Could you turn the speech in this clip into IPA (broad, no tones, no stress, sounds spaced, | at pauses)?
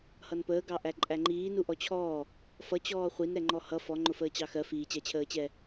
h ʌ n p əː ɡ ɑ ʔ æ ǃʼ æ ŋ͡ǃ iː n u ʔ ɔ t͡ɕʰ ɔː | f ʌ t͡ɕ ɔː χʷ i n ɾ ɛ ŋ͡ǃ ɔ h ʌ f ɔ ŋ͡ǃ ʊ f əː t͡ɕ ɑ x ɜ f iː t͡ɕ æ t͡ɕʰ əː t͡ɕ ɛː